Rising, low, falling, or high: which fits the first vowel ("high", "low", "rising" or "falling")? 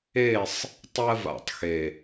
falling